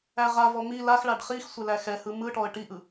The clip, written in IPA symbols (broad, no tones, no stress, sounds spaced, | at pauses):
æ ʁ a v ɔ m i l a x ɭ a ɖ χ i x sʷ ɛ l æ x ɛ h ɯ m ɯ ʈ ɔ ə̯ ʈ i ʔ ɯ